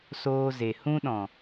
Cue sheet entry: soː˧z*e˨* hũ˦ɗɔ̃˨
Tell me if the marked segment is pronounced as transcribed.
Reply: yes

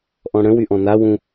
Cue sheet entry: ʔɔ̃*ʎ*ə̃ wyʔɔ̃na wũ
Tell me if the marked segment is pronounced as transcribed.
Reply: no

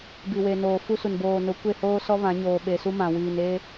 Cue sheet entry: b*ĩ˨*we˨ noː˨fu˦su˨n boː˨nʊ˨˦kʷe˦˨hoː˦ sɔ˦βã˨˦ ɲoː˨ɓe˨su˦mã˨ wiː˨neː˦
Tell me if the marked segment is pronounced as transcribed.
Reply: no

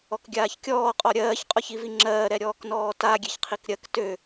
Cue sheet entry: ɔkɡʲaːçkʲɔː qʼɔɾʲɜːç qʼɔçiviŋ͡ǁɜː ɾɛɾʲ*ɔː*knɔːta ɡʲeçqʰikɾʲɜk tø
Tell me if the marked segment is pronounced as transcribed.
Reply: yes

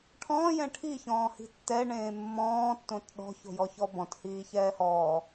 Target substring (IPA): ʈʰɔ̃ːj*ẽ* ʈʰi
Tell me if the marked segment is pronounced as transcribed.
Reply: no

